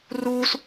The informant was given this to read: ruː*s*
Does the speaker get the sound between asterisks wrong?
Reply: no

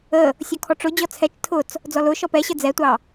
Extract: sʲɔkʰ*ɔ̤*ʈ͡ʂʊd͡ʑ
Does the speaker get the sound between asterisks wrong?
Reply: yes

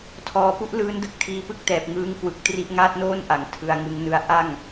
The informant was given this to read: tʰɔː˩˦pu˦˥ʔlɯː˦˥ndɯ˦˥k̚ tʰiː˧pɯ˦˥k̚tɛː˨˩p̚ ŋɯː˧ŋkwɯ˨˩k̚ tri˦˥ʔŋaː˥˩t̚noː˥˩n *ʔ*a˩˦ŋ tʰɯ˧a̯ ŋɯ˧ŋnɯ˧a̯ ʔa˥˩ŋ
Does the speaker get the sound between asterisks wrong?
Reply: no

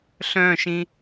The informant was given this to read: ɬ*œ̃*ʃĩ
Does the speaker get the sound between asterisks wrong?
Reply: no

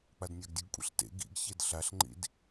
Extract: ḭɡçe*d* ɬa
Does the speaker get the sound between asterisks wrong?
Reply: no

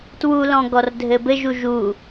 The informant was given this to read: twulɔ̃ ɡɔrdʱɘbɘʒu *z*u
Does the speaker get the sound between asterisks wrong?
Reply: yes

